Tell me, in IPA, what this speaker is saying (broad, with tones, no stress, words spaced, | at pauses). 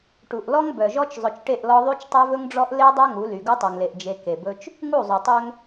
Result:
ʈu˨ʔlɔ˦ŋ bœ˨ʒɔ˦t͡ʃ zˤɵ˨t͡ʃʈe˦˨ʔlɔ˦ ðˤy˦t͡ʃtˤø˦vɵ˦ŋɖ͡ʐɔ˦ʔ le˦dˤœ˦ ŋu˨˦ly˨ ɡu˦tˤu˨ŋle˨ʔ d͡ʒe˨ ke˨bɵ˦t͡ʃ | ŋu˦˨zˤu˨tˤø˦ŋ